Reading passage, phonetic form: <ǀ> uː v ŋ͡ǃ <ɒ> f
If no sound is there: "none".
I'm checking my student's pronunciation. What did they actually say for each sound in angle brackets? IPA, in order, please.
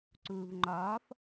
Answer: ǀ, ɒː

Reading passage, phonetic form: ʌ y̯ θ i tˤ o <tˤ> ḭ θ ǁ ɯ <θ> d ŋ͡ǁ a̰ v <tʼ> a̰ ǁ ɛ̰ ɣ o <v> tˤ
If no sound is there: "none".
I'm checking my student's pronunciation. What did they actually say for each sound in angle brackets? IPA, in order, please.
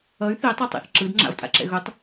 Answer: tˤ, none, tʼ, none

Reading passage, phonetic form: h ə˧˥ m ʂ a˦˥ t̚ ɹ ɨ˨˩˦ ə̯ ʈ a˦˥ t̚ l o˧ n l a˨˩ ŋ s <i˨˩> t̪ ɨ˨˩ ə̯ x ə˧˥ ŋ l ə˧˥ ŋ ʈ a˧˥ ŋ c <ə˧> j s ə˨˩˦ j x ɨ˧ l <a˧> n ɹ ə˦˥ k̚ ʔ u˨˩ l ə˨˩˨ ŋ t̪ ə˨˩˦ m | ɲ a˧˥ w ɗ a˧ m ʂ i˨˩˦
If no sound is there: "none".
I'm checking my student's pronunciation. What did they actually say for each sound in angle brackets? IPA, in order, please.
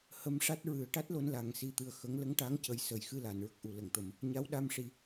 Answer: i˨˩, ə˨˩, a˨˩˨

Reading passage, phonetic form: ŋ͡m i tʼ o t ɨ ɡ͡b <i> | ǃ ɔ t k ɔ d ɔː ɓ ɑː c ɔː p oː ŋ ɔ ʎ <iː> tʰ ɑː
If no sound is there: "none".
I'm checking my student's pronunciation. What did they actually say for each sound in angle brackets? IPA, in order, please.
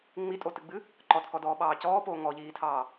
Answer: ɨ, iː

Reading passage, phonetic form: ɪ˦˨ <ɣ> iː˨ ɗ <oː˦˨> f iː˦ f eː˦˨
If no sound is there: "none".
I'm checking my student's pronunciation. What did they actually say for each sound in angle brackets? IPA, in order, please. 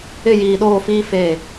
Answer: j, oː˦˨

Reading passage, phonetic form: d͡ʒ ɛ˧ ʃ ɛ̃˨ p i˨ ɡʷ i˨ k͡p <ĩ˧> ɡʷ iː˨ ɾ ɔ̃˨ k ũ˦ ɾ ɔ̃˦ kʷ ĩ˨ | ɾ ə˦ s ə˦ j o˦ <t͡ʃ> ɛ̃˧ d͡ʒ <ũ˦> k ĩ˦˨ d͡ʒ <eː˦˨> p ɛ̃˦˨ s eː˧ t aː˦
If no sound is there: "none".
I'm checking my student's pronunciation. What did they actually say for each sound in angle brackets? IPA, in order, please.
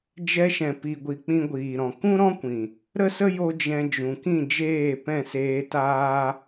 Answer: ĩ˧, d͡ʒ, ũ˨, eː˦˨

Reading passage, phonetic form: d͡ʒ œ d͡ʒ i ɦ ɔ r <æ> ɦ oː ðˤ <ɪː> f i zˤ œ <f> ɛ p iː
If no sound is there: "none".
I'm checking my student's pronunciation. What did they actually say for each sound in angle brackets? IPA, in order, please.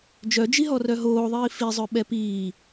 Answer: œ, iː, ɓ

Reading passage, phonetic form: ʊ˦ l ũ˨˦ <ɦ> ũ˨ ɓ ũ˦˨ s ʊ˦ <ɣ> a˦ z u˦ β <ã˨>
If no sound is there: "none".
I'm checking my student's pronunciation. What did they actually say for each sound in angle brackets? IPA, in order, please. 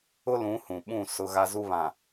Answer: h, ɣ, ã˨

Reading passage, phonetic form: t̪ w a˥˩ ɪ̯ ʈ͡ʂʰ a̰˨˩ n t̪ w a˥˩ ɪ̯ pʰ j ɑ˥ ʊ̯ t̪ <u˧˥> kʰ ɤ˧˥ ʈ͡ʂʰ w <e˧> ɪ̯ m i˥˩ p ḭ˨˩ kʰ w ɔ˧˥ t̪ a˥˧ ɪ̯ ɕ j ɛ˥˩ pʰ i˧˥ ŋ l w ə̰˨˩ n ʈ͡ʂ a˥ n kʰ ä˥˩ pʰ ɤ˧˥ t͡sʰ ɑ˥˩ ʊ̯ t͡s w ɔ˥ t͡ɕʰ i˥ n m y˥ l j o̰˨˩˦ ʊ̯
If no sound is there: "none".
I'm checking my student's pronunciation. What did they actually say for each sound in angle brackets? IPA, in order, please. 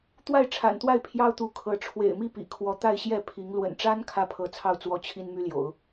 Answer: u˧˥, ḛ˨˩

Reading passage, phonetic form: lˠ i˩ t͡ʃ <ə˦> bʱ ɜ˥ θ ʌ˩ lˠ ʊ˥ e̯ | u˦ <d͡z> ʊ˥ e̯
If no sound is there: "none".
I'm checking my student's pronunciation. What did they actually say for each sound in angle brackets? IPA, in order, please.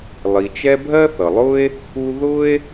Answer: ɛ˦, ð

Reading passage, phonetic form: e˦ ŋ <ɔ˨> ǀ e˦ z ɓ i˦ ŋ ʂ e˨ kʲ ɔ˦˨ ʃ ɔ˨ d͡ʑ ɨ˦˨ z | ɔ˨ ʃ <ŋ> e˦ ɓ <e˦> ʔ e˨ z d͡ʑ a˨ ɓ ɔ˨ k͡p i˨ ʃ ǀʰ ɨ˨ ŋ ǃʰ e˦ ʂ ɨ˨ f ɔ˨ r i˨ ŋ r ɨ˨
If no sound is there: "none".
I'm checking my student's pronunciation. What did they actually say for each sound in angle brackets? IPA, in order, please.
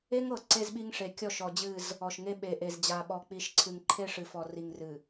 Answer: ɤ˨, ŋ, e˨

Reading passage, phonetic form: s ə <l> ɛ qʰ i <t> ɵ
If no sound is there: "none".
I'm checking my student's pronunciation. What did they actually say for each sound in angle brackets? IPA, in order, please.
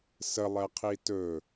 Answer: lˠ, t

